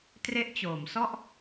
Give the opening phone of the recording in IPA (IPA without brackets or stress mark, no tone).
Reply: t